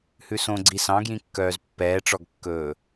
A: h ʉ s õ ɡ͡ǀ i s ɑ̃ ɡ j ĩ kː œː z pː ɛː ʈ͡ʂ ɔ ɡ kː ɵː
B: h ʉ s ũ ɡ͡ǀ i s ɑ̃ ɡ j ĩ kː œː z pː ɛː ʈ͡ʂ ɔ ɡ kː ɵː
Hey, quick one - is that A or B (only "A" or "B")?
A